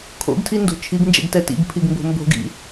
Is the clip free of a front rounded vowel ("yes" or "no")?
yes